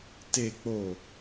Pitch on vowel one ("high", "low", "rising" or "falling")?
low